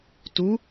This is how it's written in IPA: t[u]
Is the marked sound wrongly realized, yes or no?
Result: no